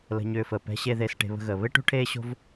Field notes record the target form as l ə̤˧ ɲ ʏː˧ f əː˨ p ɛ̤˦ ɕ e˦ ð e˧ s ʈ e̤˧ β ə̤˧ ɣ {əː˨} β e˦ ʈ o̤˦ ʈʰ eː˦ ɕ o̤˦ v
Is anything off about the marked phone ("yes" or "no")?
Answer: no